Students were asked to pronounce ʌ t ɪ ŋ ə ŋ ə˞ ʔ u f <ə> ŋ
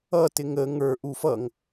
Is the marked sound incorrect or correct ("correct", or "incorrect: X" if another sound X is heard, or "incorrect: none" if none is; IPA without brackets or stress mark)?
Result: incorrect: ʌ